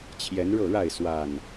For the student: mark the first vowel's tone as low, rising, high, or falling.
rising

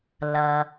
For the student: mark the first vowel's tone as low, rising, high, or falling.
low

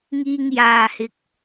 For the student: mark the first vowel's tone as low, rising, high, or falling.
low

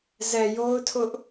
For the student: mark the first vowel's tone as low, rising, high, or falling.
low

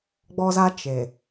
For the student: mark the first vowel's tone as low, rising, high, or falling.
high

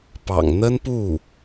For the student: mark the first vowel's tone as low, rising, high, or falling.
low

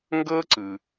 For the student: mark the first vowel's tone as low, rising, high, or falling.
high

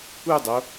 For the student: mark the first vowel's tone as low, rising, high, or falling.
falling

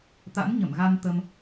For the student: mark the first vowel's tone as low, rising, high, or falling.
rising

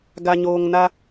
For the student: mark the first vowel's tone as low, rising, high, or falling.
low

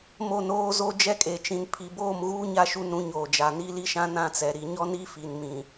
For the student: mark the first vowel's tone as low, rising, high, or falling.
falling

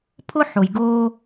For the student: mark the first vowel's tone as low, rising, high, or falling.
high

